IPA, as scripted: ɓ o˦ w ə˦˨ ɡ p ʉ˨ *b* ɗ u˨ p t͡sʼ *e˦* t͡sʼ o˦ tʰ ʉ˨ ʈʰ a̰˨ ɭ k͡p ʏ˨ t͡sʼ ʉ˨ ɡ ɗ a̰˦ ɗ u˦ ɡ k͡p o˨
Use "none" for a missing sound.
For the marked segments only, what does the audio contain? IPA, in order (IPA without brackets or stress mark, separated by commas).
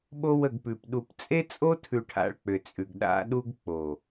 p, e˦